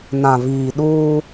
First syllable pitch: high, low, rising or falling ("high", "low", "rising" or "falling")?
low